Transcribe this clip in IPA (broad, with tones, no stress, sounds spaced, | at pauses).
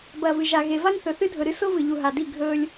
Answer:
b ɐː˨ v ɨ˨ ʒ a˨ ɣ e˨ v a˦ ŋ θ ɵ˨ θ ɨ˦ dʱ ɵ˨ ɾ ɨ˦ s o˦ v ɨ˨ ʎ u˨ ɦ a˨ d i˦˨ ɡʱ ɵː˦ lʲ